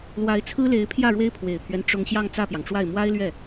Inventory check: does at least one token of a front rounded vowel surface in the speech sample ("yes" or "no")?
no